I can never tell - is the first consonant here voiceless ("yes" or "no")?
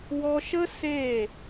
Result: no